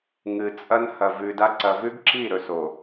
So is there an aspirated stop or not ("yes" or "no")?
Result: no